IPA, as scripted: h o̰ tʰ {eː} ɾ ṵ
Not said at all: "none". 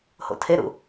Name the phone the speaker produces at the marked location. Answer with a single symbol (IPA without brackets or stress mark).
e